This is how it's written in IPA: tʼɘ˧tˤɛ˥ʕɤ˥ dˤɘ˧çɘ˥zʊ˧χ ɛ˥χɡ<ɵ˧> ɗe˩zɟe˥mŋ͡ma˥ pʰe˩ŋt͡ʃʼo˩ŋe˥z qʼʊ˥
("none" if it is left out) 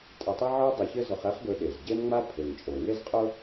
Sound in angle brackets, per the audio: ɵ˧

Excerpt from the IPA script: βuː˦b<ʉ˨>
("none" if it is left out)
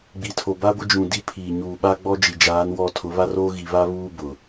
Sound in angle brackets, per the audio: ʊ˨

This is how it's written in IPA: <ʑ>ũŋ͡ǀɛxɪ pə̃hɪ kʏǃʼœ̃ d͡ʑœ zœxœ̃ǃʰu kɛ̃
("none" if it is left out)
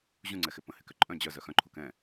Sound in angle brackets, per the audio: ʑ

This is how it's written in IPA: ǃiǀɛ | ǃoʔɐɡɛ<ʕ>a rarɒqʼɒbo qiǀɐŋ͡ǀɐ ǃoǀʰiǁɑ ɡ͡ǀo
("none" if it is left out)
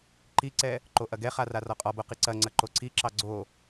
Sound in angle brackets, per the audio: χ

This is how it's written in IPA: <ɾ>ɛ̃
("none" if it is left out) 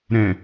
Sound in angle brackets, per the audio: ɾ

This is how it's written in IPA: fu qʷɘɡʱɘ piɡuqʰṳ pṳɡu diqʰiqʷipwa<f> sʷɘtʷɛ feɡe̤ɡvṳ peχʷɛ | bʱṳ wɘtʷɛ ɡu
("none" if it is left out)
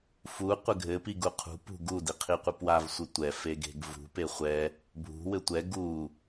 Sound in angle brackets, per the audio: v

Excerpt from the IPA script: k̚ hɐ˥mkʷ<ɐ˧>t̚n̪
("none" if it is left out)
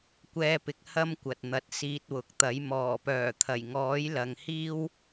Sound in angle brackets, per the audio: ɐ˨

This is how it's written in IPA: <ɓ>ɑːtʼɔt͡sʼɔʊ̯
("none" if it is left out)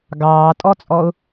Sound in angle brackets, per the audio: ɡ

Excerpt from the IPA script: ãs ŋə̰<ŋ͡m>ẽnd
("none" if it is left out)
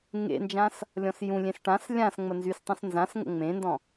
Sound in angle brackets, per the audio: ŋ͡m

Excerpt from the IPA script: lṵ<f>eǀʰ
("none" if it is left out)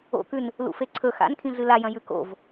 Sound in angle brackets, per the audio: f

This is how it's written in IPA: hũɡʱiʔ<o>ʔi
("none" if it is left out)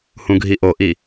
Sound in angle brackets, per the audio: o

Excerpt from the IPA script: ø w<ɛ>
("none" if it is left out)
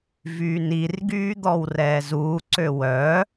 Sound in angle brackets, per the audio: œ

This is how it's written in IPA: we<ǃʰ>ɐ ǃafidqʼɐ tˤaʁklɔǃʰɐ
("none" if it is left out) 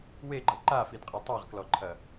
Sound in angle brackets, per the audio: ɡ͡ǃ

